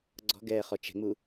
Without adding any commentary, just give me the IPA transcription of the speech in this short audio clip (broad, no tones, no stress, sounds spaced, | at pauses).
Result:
ɡ͡ǀ ɔ̤ ɡ ɛː χ ɔ t͡ʃ ɛ̤ ŋ͡m u